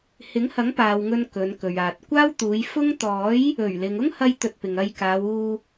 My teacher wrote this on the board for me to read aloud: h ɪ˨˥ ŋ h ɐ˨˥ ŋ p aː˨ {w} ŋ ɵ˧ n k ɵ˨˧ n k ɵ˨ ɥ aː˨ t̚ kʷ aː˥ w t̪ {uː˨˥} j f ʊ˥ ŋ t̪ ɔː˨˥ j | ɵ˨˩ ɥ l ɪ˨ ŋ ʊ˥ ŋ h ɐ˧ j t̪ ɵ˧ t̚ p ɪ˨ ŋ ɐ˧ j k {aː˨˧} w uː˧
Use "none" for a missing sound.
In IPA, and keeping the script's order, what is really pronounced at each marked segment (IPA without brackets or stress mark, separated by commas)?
w, uː˨˧, aː˨˧